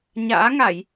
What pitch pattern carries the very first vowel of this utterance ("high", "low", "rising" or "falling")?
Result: rising